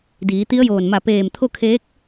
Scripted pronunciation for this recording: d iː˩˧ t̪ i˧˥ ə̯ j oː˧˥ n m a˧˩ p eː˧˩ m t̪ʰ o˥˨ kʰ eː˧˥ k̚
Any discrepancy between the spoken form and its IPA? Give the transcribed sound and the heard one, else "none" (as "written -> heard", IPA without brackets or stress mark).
oː˧˥ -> oː˧˩